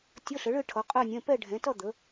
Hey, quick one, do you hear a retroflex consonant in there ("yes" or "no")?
yes